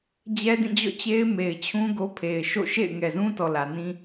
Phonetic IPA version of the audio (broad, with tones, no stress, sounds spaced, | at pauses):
d͡ʑ ɛ˦ d ĩ˦˨ d͡ʑ ɔ̰˦˨ t͡ɕ e˦ ɪ̯ m e˨ ɪ̯ t͡ɕʰ ũ˦ ɡ o˦ pʰ e˨ ɪ̯ ʃ o̰˦˨ ʃ ḛ˦˨ ɪ̯ ŋ ɛ˨ z ũ˦ t ɔ˨ l ä˨ n ĩ˦